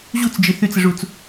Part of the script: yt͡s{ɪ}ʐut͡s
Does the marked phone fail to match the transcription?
no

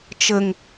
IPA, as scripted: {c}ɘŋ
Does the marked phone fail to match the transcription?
yes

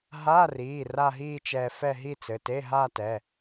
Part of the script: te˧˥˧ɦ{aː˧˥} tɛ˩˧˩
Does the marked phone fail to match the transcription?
yes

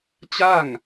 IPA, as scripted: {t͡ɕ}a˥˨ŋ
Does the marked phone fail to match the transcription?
no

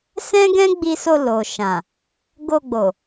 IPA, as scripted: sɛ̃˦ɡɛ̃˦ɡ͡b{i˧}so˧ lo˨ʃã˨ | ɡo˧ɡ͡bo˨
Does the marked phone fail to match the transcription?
no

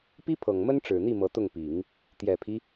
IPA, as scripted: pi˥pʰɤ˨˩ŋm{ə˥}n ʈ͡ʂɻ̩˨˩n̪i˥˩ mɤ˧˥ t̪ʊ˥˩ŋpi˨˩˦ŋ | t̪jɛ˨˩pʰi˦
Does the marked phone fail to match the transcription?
no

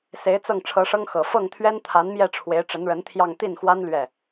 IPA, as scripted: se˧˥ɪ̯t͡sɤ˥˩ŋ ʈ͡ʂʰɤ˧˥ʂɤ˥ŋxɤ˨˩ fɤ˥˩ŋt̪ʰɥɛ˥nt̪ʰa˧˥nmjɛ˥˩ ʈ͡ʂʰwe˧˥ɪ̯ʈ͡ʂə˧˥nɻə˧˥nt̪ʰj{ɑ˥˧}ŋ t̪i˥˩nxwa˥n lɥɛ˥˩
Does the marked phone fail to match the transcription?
no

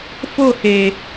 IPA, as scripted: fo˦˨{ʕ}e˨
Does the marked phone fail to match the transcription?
yes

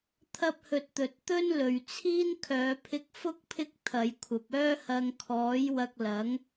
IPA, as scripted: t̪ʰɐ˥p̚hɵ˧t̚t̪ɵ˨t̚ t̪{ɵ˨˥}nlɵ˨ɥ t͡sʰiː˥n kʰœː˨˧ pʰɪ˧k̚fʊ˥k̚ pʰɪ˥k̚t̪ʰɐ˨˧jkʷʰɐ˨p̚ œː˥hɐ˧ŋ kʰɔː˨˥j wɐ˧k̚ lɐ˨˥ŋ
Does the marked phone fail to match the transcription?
yes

